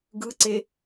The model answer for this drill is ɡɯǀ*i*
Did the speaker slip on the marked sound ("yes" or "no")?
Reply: yes